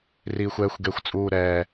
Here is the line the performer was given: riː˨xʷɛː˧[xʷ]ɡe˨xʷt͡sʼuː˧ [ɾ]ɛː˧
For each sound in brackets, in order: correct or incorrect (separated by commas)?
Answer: correct, correct